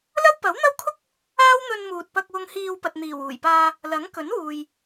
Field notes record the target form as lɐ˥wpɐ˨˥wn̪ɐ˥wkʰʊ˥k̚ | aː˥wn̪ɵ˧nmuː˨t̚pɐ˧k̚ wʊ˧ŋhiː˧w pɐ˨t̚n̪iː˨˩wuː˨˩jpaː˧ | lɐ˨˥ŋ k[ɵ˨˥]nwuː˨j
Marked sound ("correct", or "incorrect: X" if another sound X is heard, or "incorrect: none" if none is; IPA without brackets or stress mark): correct